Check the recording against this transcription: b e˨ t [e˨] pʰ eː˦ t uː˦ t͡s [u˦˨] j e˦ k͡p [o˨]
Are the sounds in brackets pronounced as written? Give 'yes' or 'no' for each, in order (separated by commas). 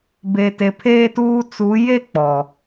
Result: yes, no, no